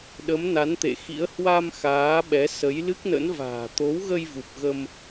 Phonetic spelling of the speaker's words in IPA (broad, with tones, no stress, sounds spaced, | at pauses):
ɗ ə˨˦ m n a˨˦ n t̪ ḛ˧˨ x ḭ˧˥ ə̯ h w a˧ m x aː˨˦ ɓ ɛ˨˦ s ə˨˦ j l ɨ˦˥ k̚ n ə̰˧˥ n v a̤ː˨˩ t̪ o˨˦ w ɣ ə˧ j v u˨˩ p̚ ɣ ə˧ m